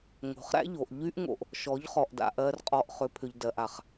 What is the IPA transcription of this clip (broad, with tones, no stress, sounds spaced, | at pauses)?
ŋ o̤˨ χ ɾ æ̰˦ ʎ o˨ ʔ ʎ y˦ ʔ ŋ o̰˨ ʔ | ʃ ɔ˨˦ ʎ χ ɔ˨ ʔ d a̰˨ ʔ ɜ˨ r qʼ ɔ˨ ʔ χ ʏ˨˦ pʰ ʏ˨ ʎ d ɜ˨ ʔ a˨ χ